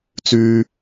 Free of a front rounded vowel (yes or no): no